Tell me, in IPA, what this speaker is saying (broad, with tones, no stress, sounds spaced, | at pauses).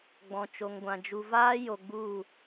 ɡ͡b ɔ̃˨ t͡ʃ o˨ ŋ ɡʷ ã˨ d͡ʒ u˨ v aː˦ j o˨ ɡ͡b u˦˨